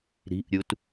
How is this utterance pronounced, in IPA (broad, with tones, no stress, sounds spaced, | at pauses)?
ɾ i̤˧˥˧ ʔ ɾʲ u˧ t